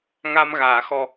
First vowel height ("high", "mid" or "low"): low